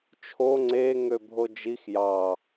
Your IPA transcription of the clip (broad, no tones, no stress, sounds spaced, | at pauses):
t͡ʃʰ o ŋ͡ǀ e ŋ ø bʱ o d͡ʒ i x j ɑ